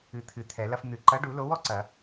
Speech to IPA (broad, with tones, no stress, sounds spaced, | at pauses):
ɨ˨˥ t̪ʰ ɨ˨˩˦ t̪ʰ ɛ˨˩˦ l ɐ˦ f n̪ ɨ˨˩˦ ǃ ɐ˨˥ ɖ u˨˩˦ l o˨˥ w ɔ˦ ǀ ɐ˨˩˦